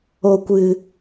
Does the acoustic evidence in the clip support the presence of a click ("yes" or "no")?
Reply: no